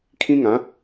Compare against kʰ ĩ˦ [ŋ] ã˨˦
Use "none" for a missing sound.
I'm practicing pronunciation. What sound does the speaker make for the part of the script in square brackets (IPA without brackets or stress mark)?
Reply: ŋ